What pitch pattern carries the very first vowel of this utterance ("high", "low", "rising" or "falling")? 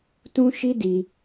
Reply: high